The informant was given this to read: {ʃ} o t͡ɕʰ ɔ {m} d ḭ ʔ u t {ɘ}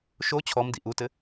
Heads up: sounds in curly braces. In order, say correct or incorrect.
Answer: correct, correct, correct

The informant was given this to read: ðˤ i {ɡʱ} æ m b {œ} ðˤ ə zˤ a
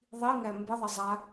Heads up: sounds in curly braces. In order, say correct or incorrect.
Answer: incorrect, incorrect

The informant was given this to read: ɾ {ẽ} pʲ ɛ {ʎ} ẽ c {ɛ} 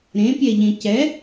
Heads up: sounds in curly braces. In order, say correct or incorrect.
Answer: correct, correct, correct

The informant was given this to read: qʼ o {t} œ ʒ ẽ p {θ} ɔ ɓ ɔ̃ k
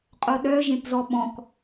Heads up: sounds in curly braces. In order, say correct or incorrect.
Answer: incorrect, incorrect

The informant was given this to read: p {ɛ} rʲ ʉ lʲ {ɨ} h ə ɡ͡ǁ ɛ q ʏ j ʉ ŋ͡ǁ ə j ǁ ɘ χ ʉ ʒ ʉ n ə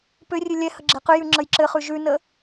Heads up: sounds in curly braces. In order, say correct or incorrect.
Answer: incorrect, incorrect

